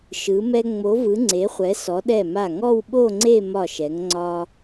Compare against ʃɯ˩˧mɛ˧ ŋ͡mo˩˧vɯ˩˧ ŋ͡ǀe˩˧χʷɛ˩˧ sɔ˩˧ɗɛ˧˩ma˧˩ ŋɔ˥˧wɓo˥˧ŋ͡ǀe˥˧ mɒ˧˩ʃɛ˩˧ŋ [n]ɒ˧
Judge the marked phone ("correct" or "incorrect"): incorrect